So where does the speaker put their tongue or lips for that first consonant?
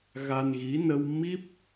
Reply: velum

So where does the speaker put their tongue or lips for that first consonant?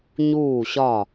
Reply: palate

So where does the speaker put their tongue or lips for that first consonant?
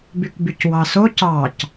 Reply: lips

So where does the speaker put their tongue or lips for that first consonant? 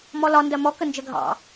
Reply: lips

